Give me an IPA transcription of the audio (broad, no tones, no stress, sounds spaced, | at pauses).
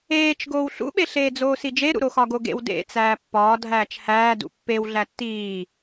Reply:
eː t͡ʃ ɡ oː w ɬ ṵ ɓ e ɬ eː d͡z oː s i d͡ʒ e ɾ ṵ ɾ o x ɒ ɡ o ɡ ḛ w d ḛ t͡s æː pː ɒː dʱ æː t͡ʃ h æː d ṵ pː e w ɮ æ tː iː